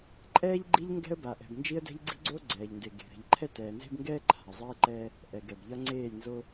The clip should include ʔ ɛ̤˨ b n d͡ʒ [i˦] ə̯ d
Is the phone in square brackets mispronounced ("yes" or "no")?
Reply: no